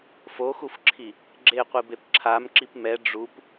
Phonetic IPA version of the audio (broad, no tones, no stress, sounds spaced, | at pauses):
f o x u f ǁʰ i | ɡ͡ǁ e qʷ i b e p ǁʰ a m ǁ i p m ɛ ɖ͡ʐ u p